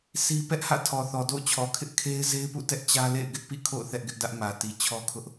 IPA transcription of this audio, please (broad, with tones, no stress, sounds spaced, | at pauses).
s i˦ p ɛ˦ ʔ h ä̰˦˨ tʰ ɔ˨ θ ɔ˨ d o̰˦˨ ʊ̯ t͡ɕʰ ɔ˨ kʰ ɪ˦ ʔ kʰ e˦ ɪ̯ z e˦ ɪ̯ p ṵ˦˨ t ɛ˦ ʔ t͡ɕ ä˦ l ḛ˦˨ ɪ̯ ɡ ɪ˦ ʔ p ḭ˦˨ kʰ o̰˦˨ ʊ̯ θ ɛ˦ ʔ ɡ ɪ˦ ʔ d ä˦ ʔ m ä˨ t i˨ t͡ɕʰ ɔ˦ kʰ ʊ˦ ʔ